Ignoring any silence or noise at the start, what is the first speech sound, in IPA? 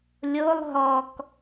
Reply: lʲ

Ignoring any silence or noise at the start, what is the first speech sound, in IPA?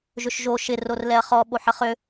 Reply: ʒ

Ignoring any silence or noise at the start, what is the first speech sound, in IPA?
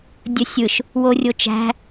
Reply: dʲ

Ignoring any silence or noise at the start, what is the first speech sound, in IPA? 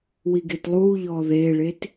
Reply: w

